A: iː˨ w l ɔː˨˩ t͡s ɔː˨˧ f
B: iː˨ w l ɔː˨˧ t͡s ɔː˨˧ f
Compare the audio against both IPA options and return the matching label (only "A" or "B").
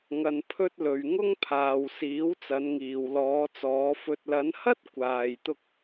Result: B